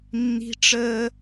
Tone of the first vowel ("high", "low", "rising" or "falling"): high